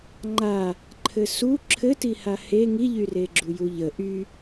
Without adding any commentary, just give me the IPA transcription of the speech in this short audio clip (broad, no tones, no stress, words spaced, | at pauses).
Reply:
ŋ͡ǃa | ǃʰɘsu ǁʰɘtiha he ŋiʎyreɡ͡ǁu juʎə ʔy